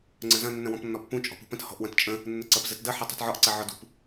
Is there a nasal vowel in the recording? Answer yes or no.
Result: yes